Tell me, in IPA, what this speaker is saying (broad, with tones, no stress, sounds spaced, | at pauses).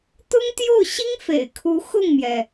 t̪ ʊ˥ ŋ t̪ j o˥˩ ʊ̯ ɕ i˥ ŋ f ḛ˨˩ ɪ̯ kʰ u˧˥ x ʊ˥˩ ŋ m j ɛ˩